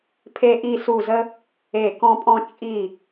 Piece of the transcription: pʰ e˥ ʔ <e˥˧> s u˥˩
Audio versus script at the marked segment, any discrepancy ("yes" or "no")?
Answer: yes